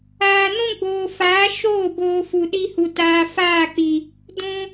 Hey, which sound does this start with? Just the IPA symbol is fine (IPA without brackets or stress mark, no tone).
aː